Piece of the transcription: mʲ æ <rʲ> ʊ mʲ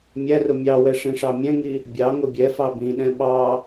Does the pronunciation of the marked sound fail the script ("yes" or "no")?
yes